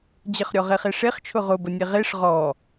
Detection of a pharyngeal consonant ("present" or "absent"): absent